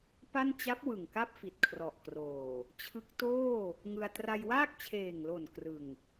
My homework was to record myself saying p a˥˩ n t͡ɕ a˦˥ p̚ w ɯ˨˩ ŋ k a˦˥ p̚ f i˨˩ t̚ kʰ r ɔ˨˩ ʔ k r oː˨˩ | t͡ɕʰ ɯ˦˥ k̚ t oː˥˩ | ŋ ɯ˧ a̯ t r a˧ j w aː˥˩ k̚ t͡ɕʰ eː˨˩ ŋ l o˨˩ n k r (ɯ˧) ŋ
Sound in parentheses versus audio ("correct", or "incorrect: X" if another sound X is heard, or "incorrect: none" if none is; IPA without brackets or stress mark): incorrect: ɯ˨˩